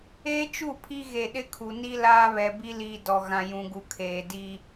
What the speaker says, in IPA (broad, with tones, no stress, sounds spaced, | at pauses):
eː˦ t͡ʃ u˦˨ pʰ i˦ ɣ e˨ ɗ ɪ˦ kʰ u˨ n i˦ l aː˦ β ɛ˨ b i˦ l iː˨ d ɔ˨ ɣ ã˨ j ũ˨ ɡ u˨ kʰ eː˨ d iː˦